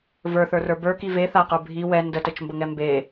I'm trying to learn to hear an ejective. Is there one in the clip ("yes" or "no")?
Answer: no